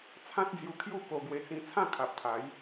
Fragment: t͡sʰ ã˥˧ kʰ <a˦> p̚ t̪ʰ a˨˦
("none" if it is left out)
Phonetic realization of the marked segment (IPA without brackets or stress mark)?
a˨